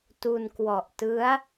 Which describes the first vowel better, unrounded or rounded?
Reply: rounded